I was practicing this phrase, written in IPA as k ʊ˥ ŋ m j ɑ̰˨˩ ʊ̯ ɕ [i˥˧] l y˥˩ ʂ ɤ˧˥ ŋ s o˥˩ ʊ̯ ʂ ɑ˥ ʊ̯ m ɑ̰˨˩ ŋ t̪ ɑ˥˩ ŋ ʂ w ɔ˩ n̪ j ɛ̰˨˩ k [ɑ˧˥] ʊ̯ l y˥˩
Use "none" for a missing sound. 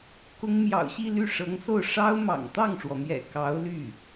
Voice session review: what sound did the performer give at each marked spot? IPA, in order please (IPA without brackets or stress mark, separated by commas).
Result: i˥˧, ɑ˧˥